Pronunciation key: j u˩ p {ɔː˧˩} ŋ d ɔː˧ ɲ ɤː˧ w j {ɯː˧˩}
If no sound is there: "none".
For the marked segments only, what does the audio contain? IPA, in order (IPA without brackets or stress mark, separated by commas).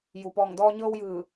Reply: ɔː˧˩, ɯː˧˩